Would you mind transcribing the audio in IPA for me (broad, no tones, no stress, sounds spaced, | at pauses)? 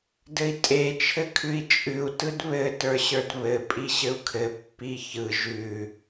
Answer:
d ɘ i̯ tʼ e t͡ʃʰ ɘ kʰ ʉ i̯ t͡ʃʼ ʉ u̯ t ɯ d β ɘ t ə˞ ɕ ə˞ d β ɘ pʼ i ɕ ɘ u̯ kʰ ɘ pː i ç ɯ ʒ ʉ